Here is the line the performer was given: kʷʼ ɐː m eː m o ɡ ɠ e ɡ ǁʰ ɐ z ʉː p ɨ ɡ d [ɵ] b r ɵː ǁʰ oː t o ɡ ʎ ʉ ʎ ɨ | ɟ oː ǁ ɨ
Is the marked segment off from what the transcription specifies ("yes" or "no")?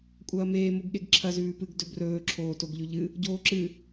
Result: no